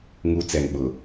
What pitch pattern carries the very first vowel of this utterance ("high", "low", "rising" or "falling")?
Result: high